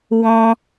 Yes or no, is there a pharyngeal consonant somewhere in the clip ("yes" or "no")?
no